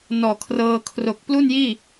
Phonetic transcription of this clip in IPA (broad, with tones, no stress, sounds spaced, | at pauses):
n ɔː˨˩ kʰ r ɤː˧ kʰ r o˨˩ k̚ p l u˥˩ n j iː˥˩